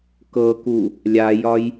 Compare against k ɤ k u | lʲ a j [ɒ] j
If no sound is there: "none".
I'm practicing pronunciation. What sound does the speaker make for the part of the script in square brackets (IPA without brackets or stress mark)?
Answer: ɒ